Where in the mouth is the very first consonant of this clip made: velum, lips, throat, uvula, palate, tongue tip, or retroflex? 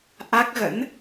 throat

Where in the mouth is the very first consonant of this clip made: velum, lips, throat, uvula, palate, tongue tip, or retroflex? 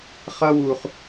uvula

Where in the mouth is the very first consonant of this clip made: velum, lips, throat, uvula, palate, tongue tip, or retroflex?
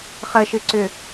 uvula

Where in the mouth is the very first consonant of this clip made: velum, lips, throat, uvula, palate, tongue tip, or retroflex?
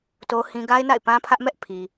tongue tip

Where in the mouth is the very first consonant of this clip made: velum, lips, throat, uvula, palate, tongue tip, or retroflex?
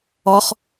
uvula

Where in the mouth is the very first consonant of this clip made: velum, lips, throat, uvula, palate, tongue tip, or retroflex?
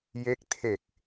palate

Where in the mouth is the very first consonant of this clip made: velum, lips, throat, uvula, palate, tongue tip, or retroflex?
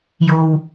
palate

